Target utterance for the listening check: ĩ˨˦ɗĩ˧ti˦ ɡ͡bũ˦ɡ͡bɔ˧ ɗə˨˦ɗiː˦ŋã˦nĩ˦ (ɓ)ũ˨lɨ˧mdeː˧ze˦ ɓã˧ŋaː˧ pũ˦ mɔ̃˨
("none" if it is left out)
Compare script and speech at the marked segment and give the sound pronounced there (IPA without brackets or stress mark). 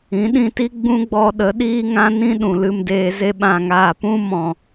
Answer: ɗ